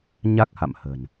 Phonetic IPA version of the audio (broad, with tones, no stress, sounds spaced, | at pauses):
ɲ a˦˥ k̚ h a̰˧˨ m h ə̤˨˩ n